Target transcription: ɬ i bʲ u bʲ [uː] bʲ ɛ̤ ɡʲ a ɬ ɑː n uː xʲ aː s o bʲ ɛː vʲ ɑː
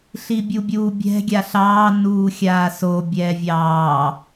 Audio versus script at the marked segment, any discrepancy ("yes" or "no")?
no